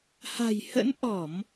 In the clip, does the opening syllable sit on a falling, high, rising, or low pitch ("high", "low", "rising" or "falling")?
low